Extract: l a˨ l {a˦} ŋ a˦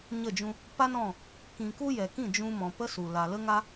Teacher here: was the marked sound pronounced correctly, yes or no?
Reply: no